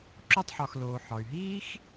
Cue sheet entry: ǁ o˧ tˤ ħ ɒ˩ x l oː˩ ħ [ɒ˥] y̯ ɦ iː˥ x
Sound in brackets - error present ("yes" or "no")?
yes